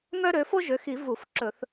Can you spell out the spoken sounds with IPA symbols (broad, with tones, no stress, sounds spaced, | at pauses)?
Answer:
ŋ œ˥ ɾ ø˩˥ f o˥ ʒ ø˩˥ x i˨˩˦ v u˨˩˦ f ǁ ɵ˨˩˦ θ